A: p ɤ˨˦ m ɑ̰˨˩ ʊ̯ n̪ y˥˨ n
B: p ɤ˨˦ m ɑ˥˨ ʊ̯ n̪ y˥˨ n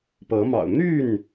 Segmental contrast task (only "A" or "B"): A